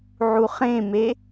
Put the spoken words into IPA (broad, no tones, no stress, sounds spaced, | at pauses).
ʕ u χ ẽ m e